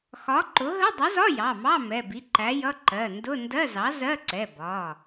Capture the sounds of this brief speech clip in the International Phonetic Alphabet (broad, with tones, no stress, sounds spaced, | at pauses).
x ɒ˨˥ ǃ ʊ˨˥ ɦ ə˧˥˧ dˤ ə˨˥ z ɒ˧˥˧ j ɑ˩˧˩ m ɑ˧˥˧ m ɛ˩˧˩ b i˨˥ ǃ æ˨˥ j ʌ˧˥˧ ǃ ɜ˩˧˩ n d ʊ˧˥˧ n d ɜ˧˥˧ z ɑ˨˥ z ɜ˧˥˧ ǀ ɛ˩˧˩ b ɒ˩˧˩